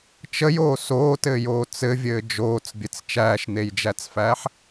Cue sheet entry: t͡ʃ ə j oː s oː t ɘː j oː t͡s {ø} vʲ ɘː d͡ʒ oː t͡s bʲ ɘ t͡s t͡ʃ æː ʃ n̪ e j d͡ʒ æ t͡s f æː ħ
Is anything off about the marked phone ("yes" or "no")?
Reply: yes